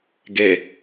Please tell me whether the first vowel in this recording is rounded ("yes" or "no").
no